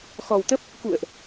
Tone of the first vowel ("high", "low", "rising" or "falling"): low